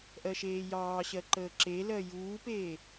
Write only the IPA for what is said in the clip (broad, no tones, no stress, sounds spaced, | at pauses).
ʔ ɜ ʃ eː j ɑː ɕ ɜ ǃ əː ǁ e l ɜ j uː p eː